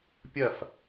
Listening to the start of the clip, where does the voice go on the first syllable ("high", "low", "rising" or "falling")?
falling